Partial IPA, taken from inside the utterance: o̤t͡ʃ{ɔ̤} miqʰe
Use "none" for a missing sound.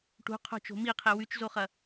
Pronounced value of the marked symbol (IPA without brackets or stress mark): o̤